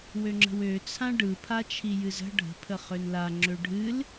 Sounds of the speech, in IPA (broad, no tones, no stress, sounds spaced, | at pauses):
w ø ŋ͡ǁ ə̤ w ø t͡sʰ ã ɖ ɯ pʰ a t͡ʃʰ i j ɨ z ə̤ ɖʱ ə̤ pʰ ə χ ø n l a ŋ͡ǁ ø ɖʱ ɨ l